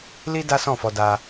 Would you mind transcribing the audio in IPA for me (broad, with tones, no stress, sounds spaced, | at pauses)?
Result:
l i˦ d a˦ s ɔ̃˦˨ f ɔ˧ d a˧